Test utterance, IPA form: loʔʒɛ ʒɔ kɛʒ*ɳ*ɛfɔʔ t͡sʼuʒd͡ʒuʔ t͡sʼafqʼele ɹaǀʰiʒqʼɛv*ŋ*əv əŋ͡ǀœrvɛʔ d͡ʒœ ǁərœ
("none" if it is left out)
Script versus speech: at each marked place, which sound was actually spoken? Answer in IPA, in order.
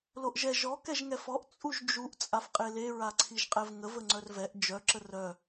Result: ŋ, ŋ

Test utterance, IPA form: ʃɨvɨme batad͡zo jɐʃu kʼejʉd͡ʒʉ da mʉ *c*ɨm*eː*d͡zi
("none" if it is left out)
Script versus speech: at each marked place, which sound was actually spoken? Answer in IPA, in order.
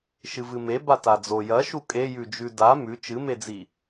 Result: t͡ʃ, e

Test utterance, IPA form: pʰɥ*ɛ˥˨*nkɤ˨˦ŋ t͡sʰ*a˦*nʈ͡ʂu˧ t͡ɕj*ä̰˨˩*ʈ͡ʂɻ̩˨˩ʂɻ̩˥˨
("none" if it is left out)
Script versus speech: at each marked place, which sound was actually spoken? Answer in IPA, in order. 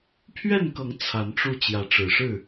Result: ɛ˥˨, a˨˦, ä˨˦

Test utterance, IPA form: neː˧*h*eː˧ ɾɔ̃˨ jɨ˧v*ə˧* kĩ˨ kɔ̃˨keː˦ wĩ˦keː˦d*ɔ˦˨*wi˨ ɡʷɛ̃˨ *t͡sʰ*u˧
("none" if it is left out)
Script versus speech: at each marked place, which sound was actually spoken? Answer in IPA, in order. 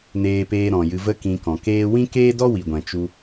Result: p, ə˦, ɔ˦, t͡ʃ

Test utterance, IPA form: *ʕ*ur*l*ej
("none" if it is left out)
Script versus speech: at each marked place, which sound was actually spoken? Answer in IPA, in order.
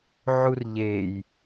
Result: ʕ, ʎ

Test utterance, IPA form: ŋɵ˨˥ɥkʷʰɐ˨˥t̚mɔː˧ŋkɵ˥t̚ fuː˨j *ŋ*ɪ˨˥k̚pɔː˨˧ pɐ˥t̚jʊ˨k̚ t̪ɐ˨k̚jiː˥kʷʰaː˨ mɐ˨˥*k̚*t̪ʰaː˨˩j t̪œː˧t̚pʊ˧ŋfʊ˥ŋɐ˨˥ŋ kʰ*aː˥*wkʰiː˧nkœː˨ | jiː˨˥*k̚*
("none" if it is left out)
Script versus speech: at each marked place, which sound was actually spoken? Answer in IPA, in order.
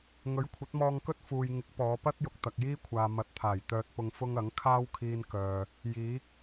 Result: ŋ, t̚, aː˥, k̚

